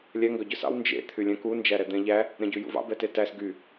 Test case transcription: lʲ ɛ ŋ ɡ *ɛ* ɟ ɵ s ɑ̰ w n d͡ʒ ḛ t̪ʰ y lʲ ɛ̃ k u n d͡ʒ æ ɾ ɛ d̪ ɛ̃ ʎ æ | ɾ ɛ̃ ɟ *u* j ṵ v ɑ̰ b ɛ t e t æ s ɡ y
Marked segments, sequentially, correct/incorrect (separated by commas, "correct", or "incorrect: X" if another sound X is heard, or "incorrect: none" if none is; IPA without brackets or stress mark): incorrect: œ, incorrect: ʉ